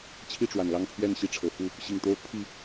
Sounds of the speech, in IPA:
t͡ɕʰi˥˨ʈ͡ʂwa˩nlɑ˥˨ŋpʰɥɛ˥˨n ɕi˥˨ʈ͡ʂʰɤ˩fu˥˨ | ɕi˨˩ŋt̪o˦ʊ̯pʰi˥˨

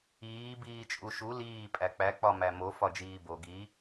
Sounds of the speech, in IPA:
iː biːt͡ʃʼuʃu liː pʼæk͡pæ k͡pɒmæmo fɒd͡ʒiːbo ɡi

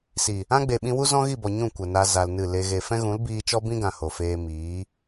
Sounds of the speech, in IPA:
si˨ | ã˦ɡ͡be˨ɓĩ˧wu˦ zɔ̃˦ɣi˦˨bɔ˨ ɲũ˦˨kʷə˨na˧ za˧lnɨ˦˨le˦ ɣe˨fɛ̃˦ɣũ˨˦l biː˧t͡ʃɔ˦bĩ˦ɡã˨ ho˨ feː˧miː˨˦

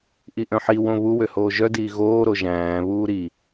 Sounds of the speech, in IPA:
ʔiʔœ̃ħi wõβu wøhoːʒœ diːɣoː ɾoʒæ̃ː βuːɾi

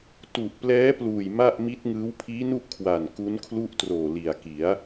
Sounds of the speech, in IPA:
tu˨˩ʔplɛː˦˥pluː˨˩j ma˥˩ʔmi˦˥t̚ŋɯː˦˥w pʰiː˦˥nu˥˩ʔkʰwa˨˩n ku˦˥nkʰlu˥˩ʔtroː˨˩ li˨˩a̯ki˩˦a̯

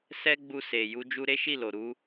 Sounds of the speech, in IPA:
sɛ˦ɡ͡bu˧se˨ ju˧ d͡ʒu˧ɾe˦ʃi˦˨lo˨ ɾu˧

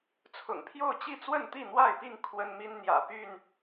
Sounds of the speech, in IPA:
t͡sʰʊ̰˨˩ŋpʰjo˥˨ʊ̯t͡ɕi˥˨ t͡swə˥˨nt̪i˥˨n̪wa˥˨ɪ̯pi˥˨ŋ kʰwə˦nmi˦n n̪jä̰˨˩py˥˨n

